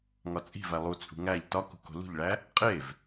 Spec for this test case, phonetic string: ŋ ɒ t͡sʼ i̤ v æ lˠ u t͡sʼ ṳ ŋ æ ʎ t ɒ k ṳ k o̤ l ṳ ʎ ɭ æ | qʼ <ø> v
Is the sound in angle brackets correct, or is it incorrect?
incorrect: e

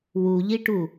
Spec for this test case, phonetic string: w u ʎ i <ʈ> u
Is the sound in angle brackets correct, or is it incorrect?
correct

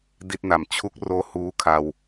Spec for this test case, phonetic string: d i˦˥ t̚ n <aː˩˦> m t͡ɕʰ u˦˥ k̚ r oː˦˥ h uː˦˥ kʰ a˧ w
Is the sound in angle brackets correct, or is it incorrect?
incorrect: a˩˦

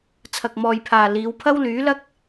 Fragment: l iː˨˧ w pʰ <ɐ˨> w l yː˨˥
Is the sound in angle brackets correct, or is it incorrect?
incorrect: ɐ˥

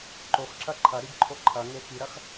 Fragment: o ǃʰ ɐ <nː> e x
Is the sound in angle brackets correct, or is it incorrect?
incorrect: ŋ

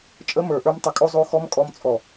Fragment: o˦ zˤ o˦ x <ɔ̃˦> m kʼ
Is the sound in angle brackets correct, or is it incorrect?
incorrect: ɔ˦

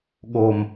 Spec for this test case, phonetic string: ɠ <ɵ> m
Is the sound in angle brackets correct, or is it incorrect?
incorrect: o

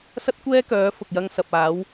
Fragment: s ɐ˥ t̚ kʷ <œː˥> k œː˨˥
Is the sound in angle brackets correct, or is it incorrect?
incorrect: ɛː˥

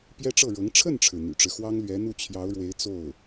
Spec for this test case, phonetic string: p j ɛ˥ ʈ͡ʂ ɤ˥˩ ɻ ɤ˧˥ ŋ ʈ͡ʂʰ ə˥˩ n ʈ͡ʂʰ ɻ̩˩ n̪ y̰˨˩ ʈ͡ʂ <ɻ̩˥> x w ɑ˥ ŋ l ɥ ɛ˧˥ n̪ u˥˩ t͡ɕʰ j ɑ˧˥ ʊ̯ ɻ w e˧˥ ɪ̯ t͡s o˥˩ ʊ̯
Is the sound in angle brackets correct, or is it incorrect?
incorrect: ɻ̩˦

